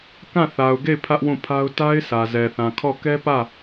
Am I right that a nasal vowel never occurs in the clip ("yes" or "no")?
no